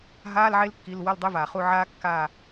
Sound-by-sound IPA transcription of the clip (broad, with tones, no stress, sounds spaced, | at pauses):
ɦ aː˧˥˧ l ʕ e˦˥ l kː i˩˧˩ l w ɐ˦˨ l dˤ e˧˥˧ v aː˩ χ u˦˨ ʕ aː˦˥ kː aː˦˨